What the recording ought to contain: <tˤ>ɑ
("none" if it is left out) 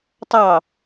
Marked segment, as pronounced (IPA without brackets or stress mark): tˤ